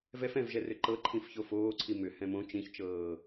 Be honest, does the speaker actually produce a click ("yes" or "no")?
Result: yes